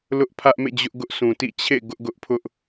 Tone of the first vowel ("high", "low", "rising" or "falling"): high